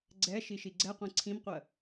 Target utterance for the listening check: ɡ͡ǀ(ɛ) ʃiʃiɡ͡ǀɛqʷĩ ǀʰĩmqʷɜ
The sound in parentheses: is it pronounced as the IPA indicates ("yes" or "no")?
yes